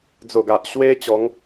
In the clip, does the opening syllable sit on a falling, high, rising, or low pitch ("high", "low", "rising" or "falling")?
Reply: low